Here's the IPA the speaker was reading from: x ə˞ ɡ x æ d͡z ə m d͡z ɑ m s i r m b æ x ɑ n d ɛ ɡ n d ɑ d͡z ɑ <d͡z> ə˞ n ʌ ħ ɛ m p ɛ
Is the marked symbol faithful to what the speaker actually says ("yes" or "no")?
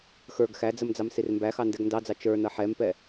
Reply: no